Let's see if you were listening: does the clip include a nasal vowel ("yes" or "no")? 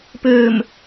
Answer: no